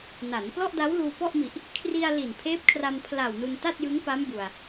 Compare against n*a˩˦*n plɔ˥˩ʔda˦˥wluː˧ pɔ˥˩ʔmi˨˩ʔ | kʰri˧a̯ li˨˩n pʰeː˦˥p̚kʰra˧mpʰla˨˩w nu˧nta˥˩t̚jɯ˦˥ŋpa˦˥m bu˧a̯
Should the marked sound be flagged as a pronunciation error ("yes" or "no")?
no